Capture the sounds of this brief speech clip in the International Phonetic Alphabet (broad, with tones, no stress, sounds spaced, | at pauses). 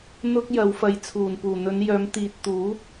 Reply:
n̪ ʊ˥ k̚ j ɐ˨˧ w f ɐ˨˧ j t͡sʰ uː˨˩ n p uː˨˩ n̪ ɵ˨˧ n j œː˨˧ m t̪ iː˨ t̚ t̪ uː˨˥